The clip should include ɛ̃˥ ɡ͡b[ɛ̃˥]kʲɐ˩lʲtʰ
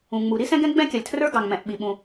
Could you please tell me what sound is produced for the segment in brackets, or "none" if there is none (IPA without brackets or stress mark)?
ɛ̃˥